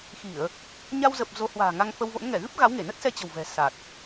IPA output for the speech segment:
x i˧˩˨ ə̯ | ɲ a˧ w z ə˨˩ p̚ z o˨˦ h w a̤ː˨˩ ŋ a˧ ŋ f ə˧ w v o̰˧˥ n ŋ ɛ˧˩ ɣ ɨ˦˥ p̚ ɣ a˨˦ w ŋ e˧˩ n ə˦˥ t̚ s ɛ˧ t͡ɕ ə̤˨˩ w v ɛ̤˨˩ s a˨˩ t̚

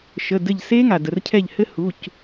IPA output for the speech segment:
ʃ ə˩˧˩ d ɘ˧˩ ʎ s e˦˥ ŋ a˩ d ə˩ r cʰ ɛ˧˩ ʎ h ɘ˦˥ h u˩˧˩ c

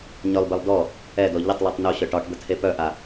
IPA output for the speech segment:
ɲ œ lˠ b e lˠ d ɔ | ɛ d ɔ ʎ ə tˤ lˠ e tˤ n o ɕ œ ʈ ɒ ʈ d̪ ə tʰ e p œ ʔ a

